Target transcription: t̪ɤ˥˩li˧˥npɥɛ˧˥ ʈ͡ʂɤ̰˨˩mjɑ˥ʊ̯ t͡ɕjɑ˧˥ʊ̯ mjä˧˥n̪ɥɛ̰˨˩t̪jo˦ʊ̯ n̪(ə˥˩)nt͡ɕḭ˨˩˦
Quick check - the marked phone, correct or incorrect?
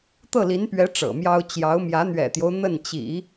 correct